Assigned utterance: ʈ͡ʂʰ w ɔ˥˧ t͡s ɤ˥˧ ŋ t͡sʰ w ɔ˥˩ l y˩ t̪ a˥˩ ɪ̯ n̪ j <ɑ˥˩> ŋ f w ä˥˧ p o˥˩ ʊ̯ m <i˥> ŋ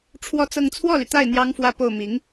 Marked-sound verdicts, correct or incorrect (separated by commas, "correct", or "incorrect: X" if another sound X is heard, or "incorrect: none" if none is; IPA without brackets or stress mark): incorrect: ɑ˥, incorrect: i˧˥